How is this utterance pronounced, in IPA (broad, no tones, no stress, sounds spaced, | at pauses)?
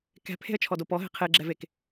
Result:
k ɛ̤ pʰ e̤ ə̯ t͡ʃʰ ɔ d o p ɔ ɦ e̤ qʰ e ɡ͡ǁ ɛ v e k